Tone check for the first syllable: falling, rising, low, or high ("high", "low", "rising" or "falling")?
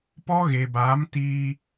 high